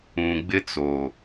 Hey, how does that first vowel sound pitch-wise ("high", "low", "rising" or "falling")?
low